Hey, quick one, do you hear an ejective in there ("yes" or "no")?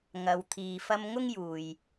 no